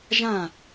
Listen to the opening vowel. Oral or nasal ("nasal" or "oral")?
nasal